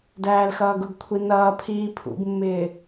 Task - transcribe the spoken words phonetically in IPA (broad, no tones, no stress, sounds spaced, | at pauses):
d æː l x ʌː ɡ ʊ ɡ kʷʰ i n ʌː pʰ iː pʰ ṵ ɡ mː ɪː